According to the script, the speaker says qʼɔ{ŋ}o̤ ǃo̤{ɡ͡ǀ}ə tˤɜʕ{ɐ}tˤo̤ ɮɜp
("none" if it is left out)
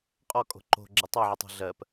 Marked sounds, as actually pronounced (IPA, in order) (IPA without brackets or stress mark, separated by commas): kʼ, ɡ͡ǁ, ə